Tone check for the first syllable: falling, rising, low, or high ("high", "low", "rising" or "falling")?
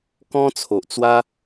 high